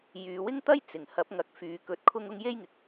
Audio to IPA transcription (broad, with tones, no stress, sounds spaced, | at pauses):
j yː˨˧ w ɪ˥ ŋ t̪ ɐ˥ j t͡s ɪ˨˩ ŋ h ɐ˨˥ p̚ ŋ ɐ˨ k̚ f yː˨˧ k ɵ˧ t̚ kʰ ʊ˥ ŋ ʊ˥ ŋ j e˥ j ŋ ɪ˨ k̚